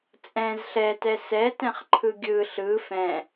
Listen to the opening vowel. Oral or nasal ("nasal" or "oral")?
nasal